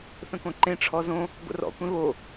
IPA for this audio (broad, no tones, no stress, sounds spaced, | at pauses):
θ ə̃ k õ ǃ ẽ ʈ͡ʂʰ ɔ z õ | ɡʷ ə̰ r ɔ̰ kʷ ẽ β o